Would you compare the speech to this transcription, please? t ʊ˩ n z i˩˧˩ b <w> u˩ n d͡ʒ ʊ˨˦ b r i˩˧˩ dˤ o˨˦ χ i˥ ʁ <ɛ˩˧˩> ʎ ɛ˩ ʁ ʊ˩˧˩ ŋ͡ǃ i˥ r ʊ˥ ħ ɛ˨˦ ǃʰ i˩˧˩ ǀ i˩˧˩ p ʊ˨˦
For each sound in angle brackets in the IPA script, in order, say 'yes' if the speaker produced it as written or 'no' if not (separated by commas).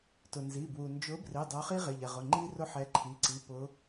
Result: yes, no